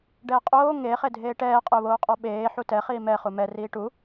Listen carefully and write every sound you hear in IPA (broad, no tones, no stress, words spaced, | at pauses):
ɖɛːqʼoː ŋe χedʱeːʈɛː qʼʊːβoːqʼɔɓeː ħutɛ χiːmɛ χumɛ riːʈu